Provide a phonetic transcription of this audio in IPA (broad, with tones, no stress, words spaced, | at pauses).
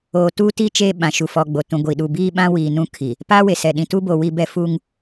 oː˨tuː˦ti˦ t͡ʃeː˦ɓã˨ ʃu˨fɔ˨ɡ͡bo˨ tũ˨ɡʷi˨ ɗu˨biː˦ɓã˦wiː˨ nũ˦kʰi˨ | paː˦we˨sɛ˨ɗĩ˨ tu˦bo˨ wi˦bɛ˦ fu˦ŋ